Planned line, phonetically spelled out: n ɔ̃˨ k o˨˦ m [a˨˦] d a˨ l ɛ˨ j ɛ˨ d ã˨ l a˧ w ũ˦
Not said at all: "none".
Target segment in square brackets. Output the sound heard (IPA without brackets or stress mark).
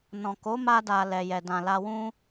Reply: a˧